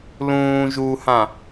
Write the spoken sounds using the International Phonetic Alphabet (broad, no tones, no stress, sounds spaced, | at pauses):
l ũː ʒ u h ã